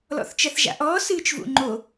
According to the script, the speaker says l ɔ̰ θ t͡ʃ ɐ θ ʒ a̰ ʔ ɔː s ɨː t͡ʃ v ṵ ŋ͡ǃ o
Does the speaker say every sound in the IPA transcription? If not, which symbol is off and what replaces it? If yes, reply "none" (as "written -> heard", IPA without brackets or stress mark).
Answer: none